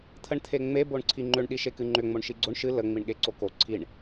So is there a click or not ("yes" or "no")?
yes